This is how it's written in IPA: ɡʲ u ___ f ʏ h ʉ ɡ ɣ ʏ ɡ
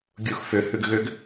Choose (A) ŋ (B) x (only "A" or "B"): B